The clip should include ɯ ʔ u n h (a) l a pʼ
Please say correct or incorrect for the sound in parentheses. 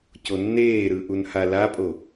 correct